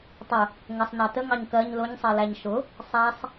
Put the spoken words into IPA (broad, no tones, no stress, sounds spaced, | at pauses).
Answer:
tˤ ʊ | ŋ ə sˤ n ɑ t ə ŋ ɑ ɲ k ɜ ɲ l ʊ ɲ sˤ ɜ l æ ɲ ʃ ʊ | sˤ æ sˤ